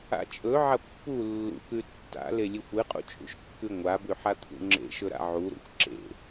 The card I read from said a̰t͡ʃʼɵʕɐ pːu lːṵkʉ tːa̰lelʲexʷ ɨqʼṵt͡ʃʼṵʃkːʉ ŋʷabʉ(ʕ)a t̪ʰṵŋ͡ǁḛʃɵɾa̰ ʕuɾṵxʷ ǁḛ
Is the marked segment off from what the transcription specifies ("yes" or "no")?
yes